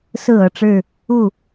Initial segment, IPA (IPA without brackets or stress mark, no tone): s